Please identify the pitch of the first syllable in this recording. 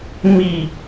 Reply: falling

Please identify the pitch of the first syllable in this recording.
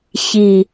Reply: low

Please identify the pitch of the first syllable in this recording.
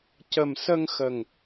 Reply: low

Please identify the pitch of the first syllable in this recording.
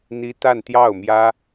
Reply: high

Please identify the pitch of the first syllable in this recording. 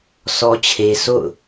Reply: high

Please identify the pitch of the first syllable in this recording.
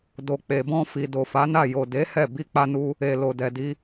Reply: low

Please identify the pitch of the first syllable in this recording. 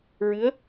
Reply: rising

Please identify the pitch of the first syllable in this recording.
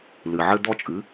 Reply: low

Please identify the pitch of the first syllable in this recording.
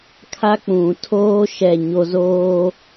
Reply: high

